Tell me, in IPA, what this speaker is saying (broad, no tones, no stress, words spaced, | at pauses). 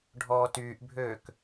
ɖʱɔːtyːʔbʱøːk